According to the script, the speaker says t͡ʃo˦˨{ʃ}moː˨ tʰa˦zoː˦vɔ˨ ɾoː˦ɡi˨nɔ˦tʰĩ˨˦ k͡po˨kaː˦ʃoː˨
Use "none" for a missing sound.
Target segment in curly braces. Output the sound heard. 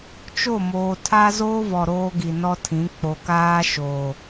none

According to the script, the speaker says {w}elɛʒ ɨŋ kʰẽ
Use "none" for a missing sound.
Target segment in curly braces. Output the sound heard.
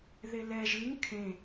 ð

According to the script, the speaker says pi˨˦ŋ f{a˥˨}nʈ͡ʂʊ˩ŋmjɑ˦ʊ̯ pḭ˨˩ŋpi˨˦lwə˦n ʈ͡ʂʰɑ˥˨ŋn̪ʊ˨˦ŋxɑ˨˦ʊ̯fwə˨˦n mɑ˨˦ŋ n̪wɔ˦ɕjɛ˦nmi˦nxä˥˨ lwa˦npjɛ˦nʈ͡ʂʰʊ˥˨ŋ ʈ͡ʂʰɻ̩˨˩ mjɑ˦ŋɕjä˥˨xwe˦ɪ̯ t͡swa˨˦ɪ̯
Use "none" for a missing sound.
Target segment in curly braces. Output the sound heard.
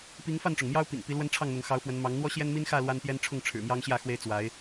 a˥˨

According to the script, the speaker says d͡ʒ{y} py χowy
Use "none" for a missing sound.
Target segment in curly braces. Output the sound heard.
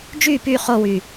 y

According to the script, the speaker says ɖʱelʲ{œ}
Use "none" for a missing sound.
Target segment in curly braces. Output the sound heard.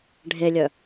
œ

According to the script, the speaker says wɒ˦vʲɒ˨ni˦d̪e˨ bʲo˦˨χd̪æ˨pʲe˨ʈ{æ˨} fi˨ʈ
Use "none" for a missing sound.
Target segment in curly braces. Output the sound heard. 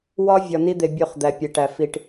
æ˨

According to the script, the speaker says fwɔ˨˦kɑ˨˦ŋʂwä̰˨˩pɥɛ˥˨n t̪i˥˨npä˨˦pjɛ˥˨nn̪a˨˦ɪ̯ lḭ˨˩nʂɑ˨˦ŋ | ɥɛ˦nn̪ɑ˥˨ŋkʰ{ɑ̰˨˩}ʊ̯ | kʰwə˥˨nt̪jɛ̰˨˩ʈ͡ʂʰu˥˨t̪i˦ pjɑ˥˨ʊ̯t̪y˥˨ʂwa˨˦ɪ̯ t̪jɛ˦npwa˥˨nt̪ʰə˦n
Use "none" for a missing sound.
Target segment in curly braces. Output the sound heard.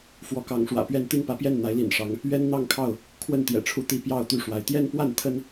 ɑ˥˨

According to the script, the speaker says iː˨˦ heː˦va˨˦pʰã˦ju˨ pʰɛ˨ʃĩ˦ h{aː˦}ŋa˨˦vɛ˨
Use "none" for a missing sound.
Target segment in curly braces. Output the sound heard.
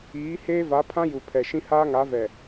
aː˦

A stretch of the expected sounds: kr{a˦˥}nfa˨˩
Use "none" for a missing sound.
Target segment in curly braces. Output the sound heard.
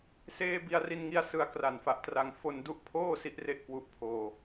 a˨˩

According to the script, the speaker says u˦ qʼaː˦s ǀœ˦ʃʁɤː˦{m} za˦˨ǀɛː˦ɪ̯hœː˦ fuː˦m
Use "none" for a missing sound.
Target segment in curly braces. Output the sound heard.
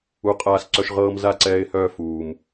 m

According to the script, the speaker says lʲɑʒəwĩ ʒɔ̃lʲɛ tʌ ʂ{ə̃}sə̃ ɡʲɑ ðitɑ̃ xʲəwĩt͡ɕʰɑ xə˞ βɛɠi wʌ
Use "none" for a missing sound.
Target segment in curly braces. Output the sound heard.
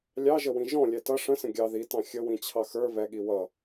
ə̃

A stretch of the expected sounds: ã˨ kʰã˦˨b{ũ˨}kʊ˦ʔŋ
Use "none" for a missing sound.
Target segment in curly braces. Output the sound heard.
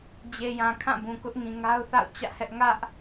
ũ˨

